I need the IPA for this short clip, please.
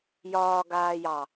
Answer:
j ɒː ɡ aː j ɑ

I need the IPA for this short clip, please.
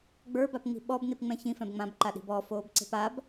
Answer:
ɡ͡b ə˞ b a p ŋ͡m i̤ ɓ ɔ b n i p ŋ͡m ɛ̃ ç ĩ f ɛ̃ b ŋ͡m ã b ǃ a ɗ i̤ b ɔ f oː b ǀ e̤ p a b

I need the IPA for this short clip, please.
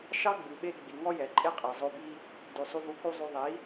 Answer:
ʃ ɑ˦ ɡ͡b ʉ˨ ɓ e˧ ɡ͡b i˨ ŋ ɔ˦ j ɛ˨ ǃʼ e˦ qʼ ɛ˨ zˤ o˧ b i˦ | d ʉ˨ sˤ u˧ v u˧ k u˦ zˤ y˧ ðˤ i˨˦

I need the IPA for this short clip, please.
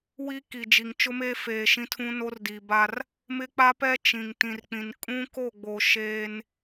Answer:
w i˦ k i˨ d͡ʒ i˨ ŋ t͡ʃ ʊ˦ m eː˦ f eː˨ ʃ ĩ˦ tʰ ũ˦ n o˦ r d i˨ b a˦ r | m ɪ˦ k͡p a˦ p ɛ˦ t͡ʃ ĩ˨ ŋ t ĩ˨ r k͡p ĩ˨ n kʼ ũ˦ k o˦˨ ɡ͡b o˨ ʃ eː˦ n

